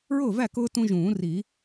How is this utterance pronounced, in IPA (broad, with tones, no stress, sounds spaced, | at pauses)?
ɹ ʊː˥˩ v æ˥˩ k ʊː˦ t ũ˦ ʒ ũː˨˩˦ r i˨˩˦